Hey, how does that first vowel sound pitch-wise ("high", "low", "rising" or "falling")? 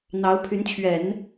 rising